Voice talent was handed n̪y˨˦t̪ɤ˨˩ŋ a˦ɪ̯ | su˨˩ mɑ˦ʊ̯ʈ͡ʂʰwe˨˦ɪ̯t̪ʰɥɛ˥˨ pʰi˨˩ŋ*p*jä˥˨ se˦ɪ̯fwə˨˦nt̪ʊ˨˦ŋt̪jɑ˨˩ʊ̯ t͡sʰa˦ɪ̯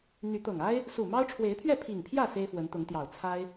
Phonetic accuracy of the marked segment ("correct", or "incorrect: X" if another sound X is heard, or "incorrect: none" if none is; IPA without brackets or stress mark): incorrect: pʰ